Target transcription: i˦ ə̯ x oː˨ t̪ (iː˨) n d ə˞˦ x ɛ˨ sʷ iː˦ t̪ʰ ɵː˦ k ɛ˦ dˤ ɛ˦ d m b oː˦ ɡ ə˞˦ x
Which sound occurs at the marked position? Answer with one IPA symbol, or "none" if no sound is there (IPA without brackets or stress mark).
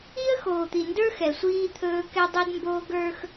i˨